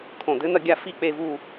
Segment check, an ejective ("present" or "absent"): absent